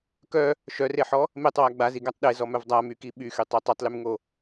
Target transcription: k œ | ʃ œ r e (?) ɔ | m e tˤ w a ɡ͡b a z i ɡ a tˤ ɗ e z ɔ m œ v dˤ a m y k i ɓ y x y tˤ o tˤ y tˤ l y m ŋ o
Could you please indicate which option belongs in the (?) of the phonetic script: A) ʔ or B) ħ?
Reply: B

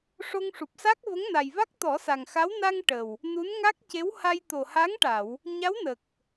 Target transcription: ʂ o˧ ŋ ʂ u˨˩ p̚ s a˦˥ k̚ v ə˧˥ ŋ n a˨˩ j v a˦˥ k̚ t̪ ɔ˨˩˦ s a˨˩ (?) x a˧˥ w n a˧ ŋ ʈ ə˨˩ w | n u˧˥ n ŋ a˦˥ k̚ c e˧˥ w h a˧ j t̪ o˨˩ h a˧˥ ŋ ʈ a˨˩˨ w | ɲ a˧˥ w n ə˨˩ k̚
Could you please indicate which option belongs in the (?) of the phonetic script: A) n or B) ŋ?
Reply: B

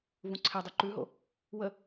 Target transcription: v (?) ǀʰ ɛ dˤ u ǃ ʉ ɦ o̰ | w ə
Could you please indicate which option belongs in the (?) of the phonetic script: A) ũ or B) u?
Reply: A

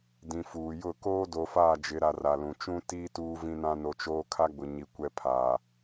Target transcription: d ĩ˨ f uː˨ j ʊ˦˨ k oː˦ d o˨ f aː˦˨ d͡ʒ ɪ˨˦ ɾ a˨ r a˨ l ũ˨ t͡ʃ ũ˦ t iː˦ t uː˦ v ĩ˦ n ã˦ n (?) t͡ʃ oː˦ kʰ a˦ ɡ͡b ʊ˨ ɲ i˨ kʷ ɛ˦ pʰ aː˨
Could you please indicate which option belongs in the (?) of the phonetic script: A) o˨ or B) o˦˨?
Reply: A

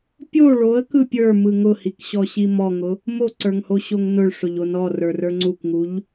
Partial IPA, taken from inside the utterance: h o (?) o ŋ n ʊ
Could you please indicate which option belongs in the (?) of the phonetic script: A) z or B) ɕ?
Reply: B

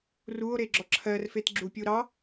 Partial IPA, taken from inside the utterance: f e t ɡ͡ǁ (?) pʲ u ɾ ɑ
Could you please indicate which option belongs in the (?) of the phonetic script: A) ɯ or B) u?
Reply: B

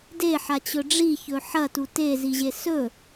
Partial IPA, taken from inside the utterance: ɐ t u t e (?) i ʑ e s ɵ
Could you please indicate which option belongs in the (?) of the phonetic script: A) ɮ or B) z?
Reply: B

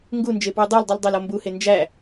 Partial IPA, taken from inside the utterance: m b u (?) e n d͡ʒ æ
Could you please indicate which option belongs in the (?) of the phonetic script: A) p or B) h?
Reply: B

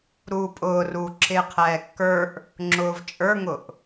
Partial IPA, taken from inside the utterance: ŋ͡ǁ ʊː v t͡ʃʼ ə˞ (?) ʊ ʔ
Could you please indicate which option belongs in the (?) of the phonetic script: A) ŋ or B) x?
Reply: A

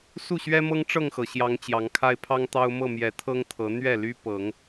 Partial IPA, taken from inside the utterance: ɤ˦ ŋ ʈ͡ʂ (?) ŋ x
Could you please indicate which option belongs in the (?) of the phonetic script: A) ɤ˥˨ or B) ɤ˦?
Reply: A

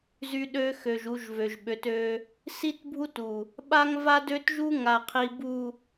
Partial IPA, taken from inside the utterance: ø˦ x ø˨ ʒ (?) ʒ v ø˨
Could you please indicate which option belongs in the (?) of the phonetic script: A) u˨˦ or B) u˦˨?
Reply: A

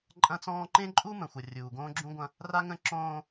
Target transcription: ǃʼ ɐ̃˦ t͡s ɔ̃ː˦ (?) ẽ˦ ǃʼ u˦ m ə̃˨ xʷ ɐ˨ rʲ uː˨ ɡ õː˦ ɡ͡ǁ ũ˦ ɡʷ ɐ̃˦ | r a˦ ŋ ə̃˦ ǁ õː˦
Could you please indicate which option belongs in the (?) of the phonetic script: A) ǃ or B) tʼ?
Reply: A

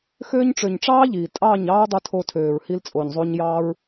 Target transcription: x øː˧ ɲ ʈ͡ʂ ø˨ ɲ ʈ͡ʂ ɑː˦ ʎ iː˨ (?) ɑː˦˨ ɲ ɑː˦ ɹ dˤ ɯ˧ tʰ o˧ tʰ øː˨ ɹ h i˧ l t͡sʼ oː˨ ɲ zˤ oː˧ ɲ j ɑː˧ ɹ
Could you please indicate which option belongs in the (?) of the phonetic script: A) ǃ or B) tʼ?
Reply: B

